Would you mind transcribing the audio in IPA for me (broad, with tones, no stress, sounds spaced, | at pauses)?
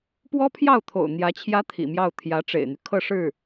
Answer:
p w ɔ˥ pʰ j ɑ˥˩ ʊ̯ t̪ʰ o̰˨˩ ʊ̯ n̪ j ä˧˥ t͡ɕʰ j ä˥ t̪ʰ ḭ˨˩ m j ɑ˥˩ ʊ̯ t̪ʰ j ä˧˥ ʈ͡ʂ ḛ˨˩ ɪ̯ n̪ y˦ kʰ ɤ˥˧ ʂ ɻ̩˥˩